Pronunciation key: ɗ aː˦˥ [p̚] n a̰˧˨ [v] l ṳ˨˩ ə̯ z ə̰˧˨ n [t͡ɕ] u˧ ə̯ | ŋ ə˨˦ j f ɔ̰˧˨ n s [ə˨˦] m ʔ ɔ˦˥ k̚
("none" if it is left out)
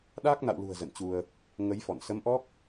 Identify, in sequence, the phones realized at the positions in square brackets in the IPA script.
k̚, w, t͡ɕ, ə˨˦

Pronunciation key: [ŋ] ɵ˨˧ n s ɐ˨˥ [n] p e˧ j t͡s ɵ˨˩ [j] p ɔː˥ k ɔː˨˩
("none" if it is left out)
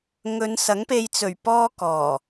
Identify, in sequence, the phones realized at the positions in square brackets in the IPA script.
ŋ, ŋ, ɥ

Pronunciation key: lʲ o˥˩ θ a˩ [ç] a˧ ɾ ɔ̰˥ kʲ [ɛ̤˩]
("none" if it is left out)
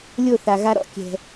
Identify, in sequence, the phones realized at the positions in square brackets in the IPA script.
ɣ, ɛ̤˩

